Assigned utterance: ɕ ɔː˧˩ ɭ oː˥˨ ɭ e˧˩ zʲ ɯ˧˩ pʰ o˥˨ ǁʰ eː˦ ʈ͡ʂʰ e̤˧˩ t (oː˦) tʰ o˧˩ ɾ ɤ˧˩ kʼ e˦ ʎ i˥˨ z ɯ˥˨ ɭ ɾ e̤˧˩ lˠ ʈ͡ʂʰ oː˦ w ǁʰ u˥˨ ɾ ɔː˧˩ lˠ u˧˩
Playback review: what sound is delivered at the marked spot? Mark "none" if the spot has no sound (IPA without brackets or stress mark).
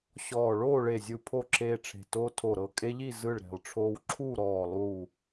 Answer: oː˦